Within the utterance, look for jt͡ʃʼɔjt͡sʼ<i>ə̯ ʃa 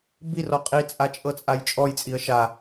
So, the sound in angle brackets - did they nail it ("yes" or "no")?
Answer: yes